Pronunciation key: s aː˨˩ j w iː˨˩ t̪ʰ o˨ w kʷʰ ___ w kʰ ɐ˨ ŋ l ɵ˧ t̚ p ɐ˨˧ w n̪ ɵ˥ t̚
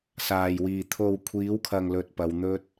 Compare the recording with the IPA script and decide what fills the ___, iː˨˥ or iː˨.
iː˨˥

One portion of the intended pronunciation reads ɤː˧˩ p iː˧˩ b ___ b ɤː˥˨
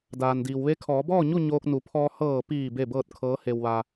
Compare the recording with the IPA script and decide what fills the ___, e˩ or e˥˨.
e˥˨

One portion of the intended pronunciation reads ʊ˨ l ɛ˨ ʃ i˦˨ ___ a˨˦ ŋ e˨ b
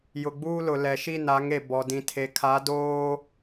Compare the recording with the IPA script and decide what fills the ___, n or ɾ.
n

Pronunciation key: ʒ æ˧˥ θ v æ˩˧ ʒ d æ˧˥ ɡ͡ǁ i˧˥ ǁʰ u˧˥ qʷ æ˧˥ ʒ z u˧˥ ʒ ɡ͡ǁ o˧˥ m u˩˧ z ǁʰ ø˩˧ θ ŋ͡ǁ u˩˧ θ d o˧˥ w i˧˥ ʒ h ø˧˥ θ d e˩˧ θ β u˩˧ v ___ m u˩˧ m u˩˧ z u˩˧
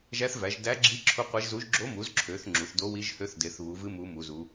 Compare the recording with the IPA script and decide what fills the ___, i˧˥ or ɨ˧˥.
ɨ˧˥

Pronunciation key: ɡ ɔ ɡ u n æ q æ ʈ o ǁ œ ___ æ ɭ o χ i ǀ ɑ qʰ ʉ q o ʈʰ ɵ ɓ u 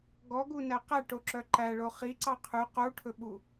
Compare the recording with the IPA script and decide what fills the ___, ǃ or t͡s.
ǃ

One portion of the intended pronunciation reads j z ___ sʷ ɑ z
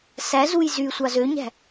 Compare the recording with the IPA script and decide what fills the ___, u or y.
y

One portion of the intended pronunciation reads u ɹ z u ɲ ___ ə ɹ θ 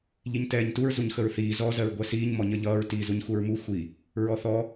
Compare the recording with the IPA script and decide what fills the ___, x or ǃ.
x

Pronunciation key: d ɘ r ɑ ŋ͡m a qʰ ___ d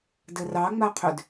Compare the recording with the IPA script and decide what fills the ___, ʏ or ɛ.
ʏ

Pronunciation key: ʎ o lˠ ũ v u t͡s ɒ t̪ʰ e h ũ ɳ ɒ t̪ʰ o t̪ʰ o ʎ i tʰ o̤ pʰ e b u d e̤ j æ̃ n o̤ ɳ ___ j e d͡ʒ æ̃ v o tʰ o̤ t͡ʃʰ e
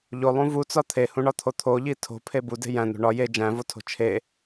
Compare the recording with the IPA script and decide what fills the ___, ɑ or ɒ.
ɒ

